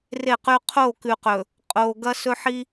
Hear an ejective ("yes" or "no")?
yes